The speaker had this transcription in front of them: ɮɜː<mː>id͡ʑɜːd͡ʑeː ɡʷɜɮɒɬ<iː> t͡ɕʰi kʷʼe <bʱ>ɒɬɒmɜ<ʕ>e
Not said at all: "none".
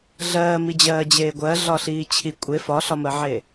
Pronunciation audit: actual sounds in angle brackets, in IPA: m, iː, f, ʕ

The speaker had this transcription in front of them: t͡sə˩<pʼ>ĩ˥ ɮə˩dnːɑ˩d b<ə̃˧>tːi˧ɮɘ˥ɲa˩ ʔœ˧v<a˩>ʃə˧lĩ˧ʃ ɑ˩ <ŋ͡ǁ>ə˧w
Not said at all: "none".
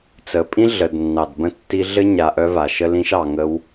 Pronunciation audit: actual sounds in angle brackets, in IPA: pʼ, ə̃˧, a˩, ŋ

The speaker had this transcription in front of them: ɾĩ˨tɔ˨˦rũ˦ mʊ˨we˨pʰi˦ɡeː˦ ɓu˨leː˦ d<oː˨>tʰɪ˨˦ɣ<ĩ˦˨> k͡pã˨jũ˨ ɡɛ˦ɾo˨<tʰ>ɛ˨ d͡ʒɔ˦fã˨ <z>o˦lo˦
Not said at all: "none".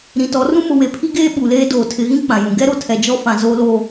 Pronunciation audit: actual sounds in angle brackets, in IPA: oː˨, ĩ˦, tʰ, z

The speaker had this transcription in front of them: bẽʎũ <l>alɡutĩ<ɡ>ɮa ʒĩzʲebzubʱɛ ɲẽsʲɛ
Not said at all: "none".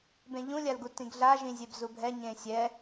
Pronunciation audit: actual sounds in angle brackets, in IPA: lʲ, ɡ

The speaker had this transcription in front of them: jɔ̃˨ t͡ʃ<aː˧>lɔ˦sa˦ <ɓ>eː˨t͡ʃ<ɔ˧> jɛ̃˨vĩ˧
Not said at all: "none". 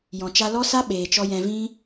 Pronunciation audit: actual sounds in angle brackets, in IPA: a˧, ɓ, ɔ˧

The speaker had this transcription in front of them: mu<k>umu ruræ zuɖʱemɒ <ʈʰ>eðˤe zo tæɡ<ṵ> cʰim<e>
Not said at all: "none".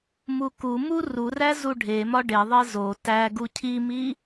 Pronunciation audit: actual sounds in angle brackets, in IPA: k, ɖ, u, i

